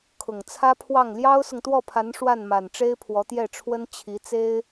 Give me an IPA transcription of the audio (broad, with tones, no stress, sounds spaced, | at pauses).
kʰ ʊ˨˩ ŋ t͡sʰ ä˥ pʰ w ɑ˥˩ ŋ l j ɑ˥ ʊ̯ s ʊ˨ ŋ t̪ w ɔ˥˩ pʰ a˧˥ n ʂ w a˥˩ n m a˨˩ n ʈ͡ʂ e˥ ɪ̯ pʰ w ɔ˧˥ t̪ j ɛ˥˩ ʈ͡ʂʰ w ə˥ n t͡ɕʰ i˧˥ t͡s e˥ ɪ̯